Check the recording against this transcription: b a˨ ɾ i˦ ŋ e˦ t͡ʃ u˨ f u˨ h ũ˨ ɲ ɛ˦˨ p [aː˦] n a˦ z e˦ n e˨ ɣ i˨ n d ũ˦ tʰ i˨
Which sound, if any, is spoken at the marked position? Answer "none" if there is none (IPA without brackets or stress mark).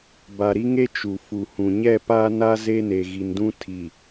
aː˦